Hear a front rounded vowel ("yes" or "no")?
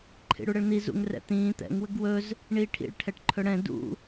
no